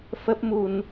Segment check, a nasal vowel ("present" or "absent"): absent